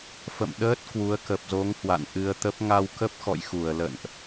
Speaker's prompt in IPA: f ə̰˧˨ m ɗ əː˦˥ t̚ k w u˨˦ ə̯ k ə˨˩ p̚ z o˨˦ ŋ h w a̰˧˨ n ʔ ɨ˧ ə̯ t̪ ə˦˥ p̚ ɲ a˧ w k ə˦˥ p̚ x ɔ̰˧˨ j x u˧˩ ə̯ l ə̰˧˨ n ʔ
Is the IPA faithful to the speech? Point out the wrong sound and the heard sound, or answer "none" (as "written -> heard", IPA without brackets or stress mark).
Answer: ɲ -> ŋ